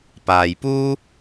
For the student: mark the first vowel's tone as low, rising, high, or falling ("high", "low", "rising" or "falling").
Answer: low